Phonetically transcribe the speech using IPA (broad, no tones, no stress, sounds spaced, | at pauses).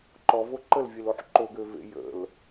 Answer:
ǃ ɔ v o ǃ ə l vʲ e l o ħ ǃ o ɡ ø v ḛ j ə̰ l